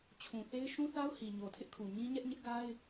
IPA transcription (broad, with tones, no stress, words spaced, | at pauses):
t͡ɕʰũ˨θe˦ɪ̯ ʃũ˦θa˦ʊ̯ hi˨ ɲo˨tʰɪ˦ʔkʰu˨ ɲĩ˦ɲɛ˦ʔɲɪ˦ʔ ɡa˦ɪ̯